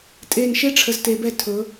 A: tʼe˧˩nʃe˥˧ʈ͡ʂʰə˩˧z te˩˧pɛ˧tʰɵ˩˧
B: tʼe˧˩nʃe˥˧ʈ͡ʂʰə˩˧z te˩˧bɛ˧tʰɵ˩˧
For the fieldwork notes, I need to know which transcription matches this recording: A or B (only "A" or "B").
B